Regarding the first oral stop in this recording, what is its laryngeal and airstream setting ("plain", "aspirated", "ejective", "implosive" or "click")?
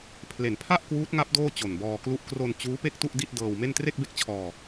aspirated